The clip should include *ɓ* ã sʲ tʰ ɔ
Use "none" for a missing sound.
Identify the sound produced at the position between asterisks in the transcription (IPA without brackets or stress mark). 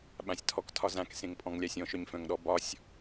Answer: ɓ